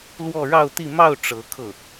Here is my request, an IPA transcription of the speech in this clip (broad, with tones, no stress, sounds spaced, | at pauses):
l w ɔ˥˧ ɻ ɑ˥˧ ʊ̯ t̪ i˥˧ m ɑ˥˩ ʊ̯ ʈ͡ʂ ɤ˧˥ kʰ ɤ˥˩